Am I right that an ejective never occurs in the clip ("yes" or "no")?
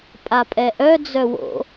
no